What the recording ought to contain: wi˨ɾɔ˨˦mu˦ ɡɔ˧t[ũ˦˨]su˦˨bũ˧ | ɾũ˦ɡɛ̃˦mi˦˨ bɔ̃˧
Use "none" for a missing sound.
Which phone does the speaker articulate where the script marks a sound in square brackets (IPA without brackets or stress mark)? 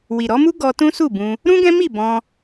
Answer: ũ˦